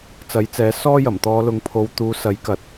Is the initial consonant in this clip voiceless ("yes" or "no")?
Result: yes